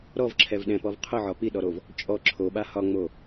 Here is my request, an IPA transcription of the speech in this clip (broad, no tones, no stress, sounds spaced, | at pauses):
ɾ ɔ v ǁʰ ɛ v ɗ ɛ̃ p ɔ v qʰ ʊ ʕ ɒ p i ɗ ɔ ɾ o v | t͡ʃʼ ɔ ǁʰ o ɓ a h ɒ ŋ͡m o